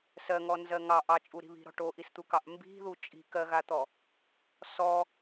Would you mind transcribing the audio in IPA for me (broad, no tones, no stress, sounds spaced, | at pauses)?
s ɜ ŋ ɔ n z ɜ ŋ ɑ ʔ ɑ t͡ʃʼ u ɾ i̤ β i̤ ɾ ɔ̤ ʈ o ʔ i s t̪ u k ɑ ʔ m b i̤ ð u t͡ʃʼ i̤ k ɜ ɣ a t̪ ɔ | s ɔ